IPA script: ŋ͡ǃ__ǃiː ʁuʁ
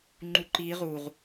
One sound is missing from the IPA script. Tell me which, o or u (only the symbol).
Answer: u